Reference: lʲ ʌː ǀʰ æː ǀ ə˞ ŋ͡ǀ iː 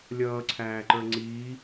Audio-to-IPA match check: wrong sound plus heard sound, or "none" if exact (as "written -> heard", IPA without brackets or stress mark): ǀ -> ǃ